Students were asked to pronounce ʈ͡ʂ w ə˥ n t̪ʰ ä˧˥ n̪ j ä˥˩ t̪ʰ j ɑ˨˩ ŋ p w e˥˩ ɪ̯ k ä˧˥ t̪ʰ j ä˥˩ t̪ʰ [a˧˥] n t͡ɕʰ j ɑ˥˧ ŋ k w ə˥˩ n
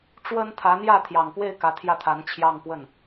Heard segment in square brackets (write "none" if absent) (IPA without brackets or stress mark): a˧˥